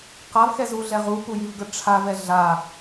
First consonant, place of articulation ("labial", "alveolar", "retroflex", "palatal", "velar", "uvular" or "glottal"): uvular